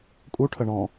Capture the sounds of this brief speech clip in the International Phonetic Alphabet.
kʼuʈʰə ɳɔ̃

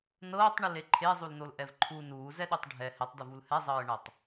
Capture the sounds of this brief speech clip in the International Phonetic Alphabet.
nɤːtˤɳile ǃʰezˤulnolʔɛv ǃʰu nuːzɛɗɯtˤ ɖʱɛ hɛtˤduvul hɛzˤɤːɳɤtˤ

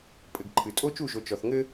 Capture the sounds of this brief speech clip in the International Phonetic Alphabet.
pʼɘ˨ɡ ǃʰɨ˨ tʼo˦t͡ʃu˦˨ʒo˨ t͡ʃɔ˨θŋɘ˦

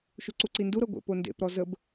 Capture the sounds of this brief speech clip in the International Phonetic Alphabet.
ʃuǀuǀindu ɾɤɡʷḛ pondḛpɾɔ zəb

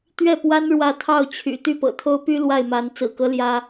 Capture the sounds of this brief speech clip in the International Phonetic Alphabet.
t̪ɥɛ˥˩pwa˥n ɻwä˥˧ t̪ʰɑ˥˩ʊ̯t͡ɕʰy̰˨˩ t̪y˥˩pɤ̰˨˩t̪ʰo˥ʊ̯py˥ lwa˥˩ɪ̯ma˧˥n t͡sɹ̩˨˩kɤ˧˥ ljä˥

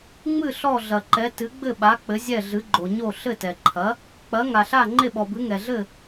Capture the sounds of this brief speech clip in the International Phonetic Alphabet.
ŋ͡mɨ˥˩ ɬɔ˥˩ɮɐ˩ǃɛ˩˥ tɨ˩˥ɡ͡bɘ˥˩ɓa˩˥ k͡pɘ˩˥zʲɛ˥˩ɮɨ˩˥ɡ͡ǃo˩ ɲo˥˩ ɬɘ˥˩tɛ˩ǃʰɐ˩˥ | k͡pɐ˩˥ ŋa˩ɬa˥˩ ŋ͡ǃe˥˩ɓɔ˩bɨ˩˥ ŋɛ˩ɮɘ˥˩

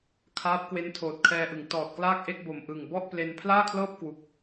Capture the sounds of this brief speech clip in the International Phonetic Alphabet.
kʰaː˦˥p̚ kwe˦˥ntʰoː˨˩t̚kʰɛː˧ʔɯ˩˦ŋ tɔː˨˩t̚klaː˥˩k̚ʔe˥˩k̚bo˨˩m ʔɯ˨˩ŋ bɔ˥˩ʔple˧n pʰlaː˥˩kʰlɤː˥˩p̚kwu˨˩k̚

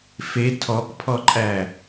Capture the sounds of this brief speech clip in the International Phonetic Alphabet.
fe tʰɔkpʰɔǃʼæ

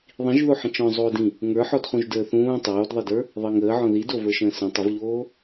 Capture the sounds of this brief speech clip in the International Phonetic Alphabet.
ðˤĩʒðoħə̃ t͡ʃɔ̃ zˤoːdĩ | ŋə˞ħɔdχũʒ dəːθũː tˤoːdðˤedə˞ | ðˤəːŋəːʕɔ̃ ðid ovə˞ʃə̃ː sə̃ tˤəvʎoː

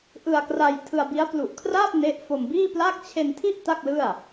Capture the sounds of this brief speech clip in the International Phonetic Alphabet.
ʔɯ˧a̯kra˧j tʰɯ˧a̯bi˦˥a̯ plu˨˩ʔkʰraː˥˩p̚ ne˦˥ʔfo˧m biː˥˩pla˥˩k̚ t͡ɕʰe˧ntʰi˥˩ʔ ta˥˩k̚lɯ˥˩a̯

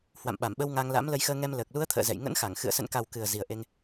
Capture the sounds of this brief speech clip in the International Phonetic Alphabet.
hwa̰˧˨mɓa˧˩mɓə˧w ŋa˧ŋla̰˧˥m lə˨˦jxəː˧ŋɛ˧m ləː˨˩k̚lu˨˦ə̯ t̪ʰə̰ː˧˨zɛ̰˧˨j ŋə̰˧˥nxa˧˩ŋ xɨ̰˧˨ə̯ sə̰˧˨nka˨˩w kɨ˨˩ə̯ zi˨˩ə̯ʔe˧ŋ

